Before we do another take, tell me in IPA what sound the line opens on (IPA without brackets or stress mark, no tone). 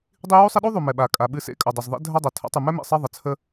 dˤ